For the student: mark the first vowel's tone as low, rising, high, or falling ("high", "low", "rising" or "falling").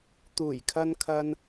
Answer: low